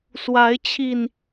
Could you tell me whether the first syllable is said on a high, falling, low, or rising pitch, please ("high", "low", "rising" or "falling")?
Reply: rising